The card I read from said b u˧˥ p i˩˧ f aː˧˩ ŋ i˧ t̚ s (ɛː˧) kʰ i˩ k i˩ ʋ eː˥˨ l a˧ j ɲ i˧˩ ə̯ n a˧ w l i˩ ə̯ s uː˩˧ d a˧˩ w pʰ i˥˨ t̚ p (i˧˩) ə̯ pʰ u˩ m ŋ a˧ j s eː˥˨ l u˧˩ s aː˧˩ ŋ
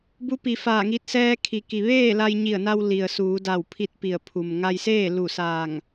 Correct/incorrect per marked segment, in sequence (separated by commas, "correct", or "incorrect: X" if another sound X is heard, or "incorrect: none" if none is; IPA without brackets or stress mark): correct, correct